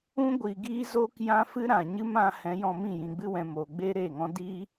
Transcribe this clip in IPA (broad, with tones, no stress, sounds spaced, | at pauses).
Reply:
ũ˦ ɡʷ i˨ ɡ iː˦ z oː˦ k j ã˦ f ɨ˦ ɾ ã˨ ɲ ɨ˦ m ã˧ h ɛ̃˨˦ j ɔ̃˧ m ĩ˦˨ j ĩ˨ ɡ͡b ɨ˧ w ɛ̃˨ m oː˨ ɡ͡b eː˦ ɾ eː˦˨ ŋ ɔ̃˦ d i˦